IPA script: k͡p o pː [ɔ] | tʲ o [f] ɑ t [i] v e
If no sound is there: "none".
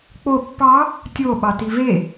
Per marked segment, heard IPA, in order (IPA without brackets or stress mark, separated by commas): ɑ, ɓ, i